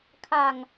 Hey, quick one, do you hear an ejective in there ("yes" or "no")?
no